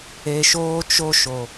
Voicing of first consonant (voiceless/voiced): voiceless